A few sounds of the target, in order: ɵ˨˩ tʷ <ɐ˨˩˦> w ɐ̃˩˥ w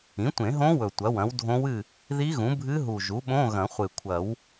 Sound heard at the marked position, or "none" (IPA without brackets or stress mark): ɐ˩˥